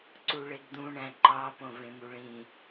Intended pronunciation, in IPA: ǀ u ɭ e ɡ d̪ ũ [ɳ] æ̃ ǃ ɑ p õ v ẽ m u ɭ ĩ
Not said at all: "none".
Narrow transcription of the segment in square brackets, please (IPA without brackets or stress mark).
ɳ